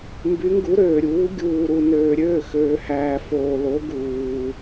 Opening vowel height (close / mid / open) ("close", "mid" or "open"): close